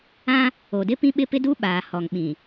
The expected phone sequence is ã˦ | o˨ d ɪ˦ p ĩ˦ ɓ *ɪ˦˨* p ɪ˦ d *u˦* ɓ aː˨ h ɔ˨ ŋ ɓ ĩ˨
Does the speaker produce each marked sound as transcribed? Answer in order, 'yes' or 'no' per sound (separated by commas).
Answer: no, yes